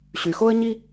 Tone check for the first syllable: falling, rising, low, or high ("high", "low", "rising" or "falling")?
low